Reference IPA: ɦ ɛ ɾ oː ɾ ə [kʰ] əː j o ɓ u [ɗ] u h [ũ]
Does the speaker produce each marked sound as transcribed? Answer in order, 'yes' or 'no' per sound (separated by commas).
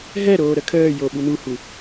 yes, no, no